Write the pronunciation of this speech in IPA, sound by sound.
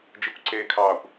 d͡ʒ i kʷ ǀ eː kʰ ɑː kʷ

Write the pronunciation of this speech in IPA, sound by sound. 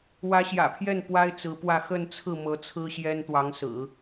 w ä˧˥ ɕ j ä̰˨˩ pʰ j ɛ˥˩ n p w a˥ ɪ̯ t͡s ɹ̩˧˥ p w ä˥˧ x ə˥˧ n t͡sʰ ɹ̩˥˩ m ɤ˧˥ t͡sʰ ɹ̩˥ ɕ j ɛ˥ n t̪ w ɑ˧˥ ŋ s ɹ̩˨˩˦

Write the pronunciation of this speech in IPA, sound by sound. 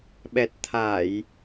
ɓ ɛ˨˩ t̚ t̪ʰ a˧˩˨ j

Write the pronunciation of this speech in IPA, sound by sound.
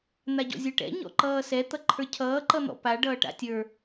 n̪ a ɟ ɔ̰ zʲ ə˞ ʈ ɛ̰ ɲ ɔ̰ ǃ ʌː s ɛ t̪ ʌ ǃʰ ə˞ cʰ ʌː ǃ ʌ n̪ ɔ̰ p a ɖ ʌː ʈ a̰ tʲ ə˞

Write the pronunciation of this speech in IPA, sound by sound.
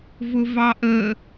v ʊ v ɑ ʔ əː

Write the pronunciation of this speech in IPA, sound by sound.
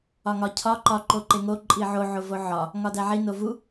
ɒ ŋ ɒ cʰ ɒ ǃ ɒ ǃ o ǃ e ŋ o ǃʼ i ʕ o ʕ o v o ʕ ɒ | ŋ ɒ d æ ʕ i n o v u

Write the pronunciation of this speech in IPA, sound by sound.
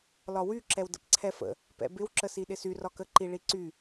l ɒ w y ǁ ɛ w d ə̰ p ǀʰ ɛ f ə̰ | p ɛ̰ b ɪ w ǁ ə s i ɗ ɪ s y r ɒ k ə ǃ i ɭ i ǀ y

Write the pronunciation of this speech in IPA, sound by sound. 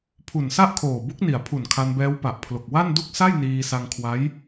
pʰ u˨˩ n s a˥˩ ʔ kʰ oː˨˩ b u˦˥ k̚ n i˩˦ a̯ pʰ u˨˩ n kʰ a˧ n b ɛː˦˥ w p a˨˩ ʔ pʰ l o˨˩ k̚ w a˥˩ n d u˥˩ k̚ s a˥˩ j n iː˧ s a˧ ŋ kʰ w a˦˥ j

